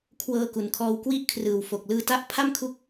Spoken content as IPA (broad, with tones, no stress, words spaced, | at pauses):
kʰwɤː˧ku˨˩nkʰɔː˧w kwi˥˩ʔkʰrɯː˨˩wfo˨˩k̚ lɯː˧ta˦˥ʔ pʰa˥˩mkʰu˦˥k̚